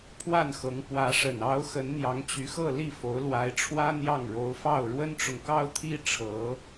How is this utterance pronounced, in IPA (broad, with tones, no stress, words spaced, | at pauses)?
pʰwa˥˩nxɤ˧˥ŋ pwä˧˥ʂə˨˩n ɑ˧˥ʊ̯ xə˧˥nn̪jɑ˧˥ŋt͡ɕy˧˥xɤ˥˧ li˥˩fo˧˥ʊ̯ lwa˧˥ɪ̯ʈ͡ʂʰwä˥n̪jɑ˥˩ŋɻo˧˥ʊ̯ fɑ˥˩ʊ̯ɻwə˥nʈ͡ʂʊ˨ŋ kɑ˥ʊ̯t̪ʰi˥ ʈ͡ʂʰɤ˧˥